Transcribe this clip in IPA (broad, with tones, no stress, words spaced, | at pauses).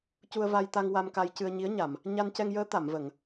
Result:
cu˧ə̯va˧jt̪a˧ŋ wa˧mka˧jcɨ˧ə̯ ɲi˧˥ə̯ɲa˨˩˨m | ɲa˧ncɛ˧ŋjəː˧˥ t̪a˨˩˨mvə˨˩˨ŋ